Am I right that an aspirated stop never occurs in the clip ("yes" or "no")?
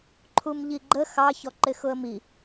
no